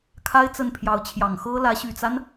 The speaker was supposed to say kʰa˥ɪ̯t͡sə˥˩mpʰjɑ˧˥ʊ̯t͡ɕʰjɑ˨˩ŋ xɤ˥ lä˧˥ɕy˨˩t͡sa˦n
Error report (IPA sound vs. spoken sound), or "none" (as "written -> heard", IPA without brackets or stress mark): m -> n